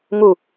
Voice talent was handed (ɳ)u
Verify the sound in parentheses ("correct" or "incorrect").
incorrect